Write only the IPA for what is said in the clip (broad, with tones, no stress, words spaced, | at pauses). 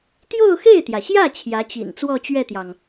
t̪jo˥˧ʊ̯xe˥˩ɪ̯t̪jä˩ɕjä˥˩ t͡ɕʰjä˧˥t͡ɕḭ˨˩n t͡swɔ˥˧t͡ɕɥɛ˥˩t̪jɑ˩ŋ